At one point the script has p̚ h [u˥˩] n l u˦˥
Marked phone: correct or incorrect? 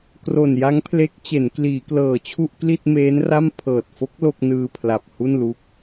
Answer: correct